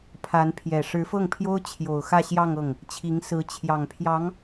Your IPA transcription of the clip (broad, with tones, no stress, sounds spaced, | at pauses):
pʰ a˧˥ n pʰ j ɛ˨˩ ʂ ɻ̩˧˥ f ɤ˥˩ ŋ pʰ j o˥ ʊ̯ t͡ɕʰ j o˨˩ ʊ̯ x ä˥˧ ɕ j ɑ˥˧ ŋ ɤ˥˩ ŋ | t͡ɕʰ i˧˥ ŋ s ɹ̩˧˥ t͡ɕʰ j ɑ˨˩ ŋ pʰ j ɑ˧˥ ŋ